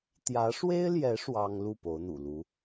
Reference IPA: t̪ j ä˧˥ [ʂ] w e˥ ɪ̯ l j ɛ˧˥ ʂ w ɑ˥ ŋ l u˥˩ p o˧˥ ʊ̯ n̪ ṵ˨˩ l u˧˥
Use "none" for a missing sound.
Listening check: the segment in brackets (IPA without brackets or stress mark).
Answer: ʂ